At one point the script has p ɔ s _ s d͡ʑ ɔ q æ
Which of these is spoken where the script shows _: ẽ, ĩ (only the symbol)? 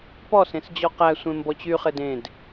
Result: ẽ